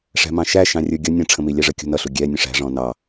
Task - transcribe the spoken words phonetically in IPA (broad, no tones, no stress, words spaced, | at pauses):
ʂæ̤mɑ̃ʃæ ʃɑ̃rʲə˞ɡʲʌ nʲə̃ ʈ͡ʂʰə̃milʲæʐə kʲṳnʌɬu ɡʲɛ nʲə̃ʂæ̤ʐɔ̃ nɑ